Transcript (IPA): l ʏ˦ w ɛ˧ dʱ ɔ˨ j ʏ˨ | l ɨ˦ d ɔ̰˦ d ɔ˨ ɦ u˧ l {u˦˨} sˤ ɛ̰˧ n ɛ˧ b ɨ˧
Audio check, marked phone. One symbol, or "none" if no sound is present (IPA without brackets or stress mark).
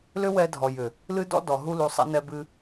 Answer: u˨